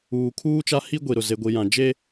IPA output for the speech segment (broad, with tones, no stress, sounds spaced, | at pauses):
uː˨ kʰ uː˦ t͡ʃ a˦ h i˦ ɡʷ i˨ ɾ ʊ˨ z e˨ ɡʷ i˨ j ã˨ d͡ʒ e˦